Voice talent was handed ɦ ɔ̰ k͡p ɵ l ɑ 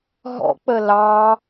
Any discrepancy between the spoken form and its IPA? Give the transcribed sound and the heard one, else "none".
ɵ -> ə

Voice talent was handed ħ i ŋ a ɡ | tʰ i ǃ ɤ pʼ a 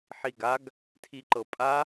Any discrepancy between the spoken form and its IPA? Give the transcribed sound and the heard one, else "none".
ŋ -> ɡ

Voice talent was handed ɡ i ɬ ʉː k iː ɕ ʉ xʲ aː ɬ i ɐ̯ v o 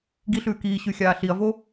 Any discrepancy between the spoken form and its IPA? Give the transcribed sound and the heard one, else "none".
none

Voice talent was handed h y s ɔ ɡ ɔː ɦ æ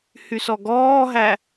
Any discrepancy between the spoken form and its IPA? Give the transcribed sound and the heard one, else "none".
none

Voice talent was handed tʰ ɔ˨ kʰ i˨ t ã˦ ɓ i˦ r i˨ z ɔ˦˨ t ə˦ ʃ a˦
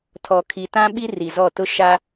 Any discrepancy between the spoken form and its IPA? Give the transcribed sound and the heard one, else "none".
ə˦ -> ʊ˦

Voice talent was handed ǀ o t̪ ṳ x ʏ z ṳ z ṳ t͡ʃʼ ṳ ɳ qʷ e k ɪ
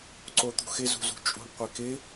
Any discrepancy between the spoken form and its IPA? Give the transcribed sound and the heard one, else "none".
ʏ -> ɪ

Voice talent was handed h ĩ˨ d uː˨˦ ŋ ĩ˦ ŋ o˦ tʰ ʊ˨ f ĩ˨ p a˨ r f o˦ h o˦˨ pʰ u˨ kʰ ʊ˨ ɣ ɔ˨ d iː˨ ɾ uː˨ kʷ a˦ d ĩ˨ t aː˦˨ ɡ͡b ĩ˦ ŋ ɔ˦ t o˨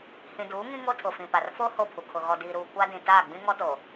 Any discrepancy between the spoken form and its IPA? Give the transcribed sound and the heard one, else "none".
none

